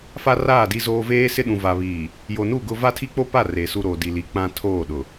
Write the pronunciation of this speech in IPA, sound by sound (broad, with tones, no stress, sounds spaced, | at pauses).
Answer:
f a˦ r aː˦˨ d i˦ z oː˦ v eː˦ s ɪ˦ ɗ ũ˨ v a˨ β iː˨ | j o˨ n u˦˨ ɡ ʊ˦ v a˦ tʰ i˦ k͡p o˦ p a˦˨ r e˨ s u˦ ɾ o˨ d i˨ l i˨ k͡p ã˦ tʰ oː˦˨ ɗ ʊ˨